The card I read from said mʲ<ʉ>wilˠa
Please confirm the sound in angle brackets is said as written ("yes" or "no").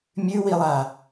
yes